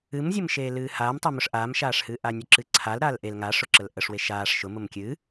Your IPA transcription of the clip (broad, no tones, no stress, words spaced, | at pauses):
ɨmzʲəm ʃeːlɨːhaːmtˤe mʊʂʔaːmʃaːʂhɨː ʔanʲʊǁɨǀʰal ɾaːlʔel ŋaʂʊǁəl ʔəʂwe ʃaːʂ ʃʊ mʊmkʲɨ